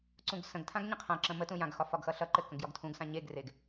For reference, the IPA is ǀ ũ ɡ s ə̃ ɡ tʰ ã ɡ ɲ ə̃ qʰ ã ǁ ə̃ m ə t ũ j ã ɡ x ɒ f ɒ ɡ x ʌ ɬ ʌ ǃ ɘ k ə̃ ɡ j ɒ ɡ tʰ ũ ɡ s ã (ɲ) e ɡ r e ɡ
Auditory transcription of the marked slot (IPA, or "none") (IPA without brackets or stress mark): ɲ